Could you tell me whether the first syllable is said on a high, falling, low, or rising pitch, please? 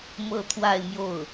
falling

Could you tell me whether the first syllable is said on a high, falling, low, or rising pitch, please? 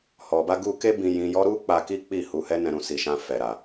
low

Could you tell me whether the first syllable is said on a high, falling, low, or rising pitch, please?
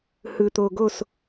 low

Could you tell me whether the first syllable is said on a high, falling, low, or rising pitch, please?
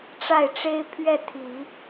falling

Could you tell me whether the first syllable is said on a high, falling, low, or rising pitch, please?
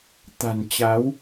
low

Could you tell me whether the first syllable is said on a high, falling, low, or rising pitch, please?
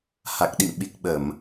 low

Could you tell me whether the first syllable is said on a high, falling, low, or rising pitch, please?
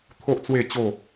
high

